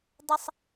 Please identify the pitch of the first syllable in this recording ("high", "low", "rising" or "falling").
high